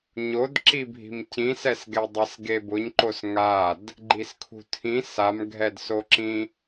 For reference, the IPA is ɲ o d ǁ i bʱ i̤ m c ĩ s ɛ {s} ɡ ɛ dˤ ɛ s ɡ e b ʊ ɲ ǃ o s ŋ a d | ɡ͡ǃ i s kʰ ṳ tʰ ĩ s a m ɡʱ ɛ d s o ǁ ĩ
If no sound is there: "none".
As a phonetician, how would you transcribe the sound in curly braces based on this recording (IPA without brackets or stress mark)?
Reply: s